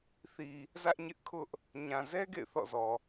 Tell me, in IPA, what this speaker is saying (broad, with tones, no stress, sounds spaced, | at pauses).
θ i˨ | z ä˦ ʔ ɲ ɪ˦ ʔ kʰ ʊ˦ ʔ | ɲ ã˨ z ɛ˦ ɡ ḛ˦˨ ɪ̯ θ ɔ̰˦˨ z ɔ˨